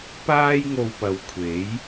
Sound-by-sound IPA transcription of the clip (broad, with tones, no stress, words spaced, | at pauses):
paː˥jŋo˧wpɐ˨wkʷʰe˨˥j